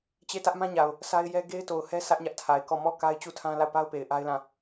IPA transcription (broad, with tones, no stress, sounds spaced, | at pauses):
t͡ɕ e˦˨ t ä˦ ʔ m ã˦ ɲ a˨ ʊ̯ | sʰ a˦ ɪ̯ j ɛ˦ ɡ e˦ ɪ̯ t o˨ ʊ̯ h ɛ˦ sʰ ä˦ ʔ ɲ ä˦ ʔ tʰ a˨ ɪ̯ k ɔ˦˨ m ɔ˦˨ k a˦ ɪ̯ t͡ɕ u˦˨ tʰ ã˦ l a˦˨ ʊ̯ p a˦ ʊ̯ p e˨ ɪ̯ ʔ a˦ ɪ̯ l ã˦˨